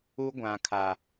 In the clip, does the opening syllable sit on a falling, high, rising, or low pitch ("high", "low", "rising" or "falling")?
high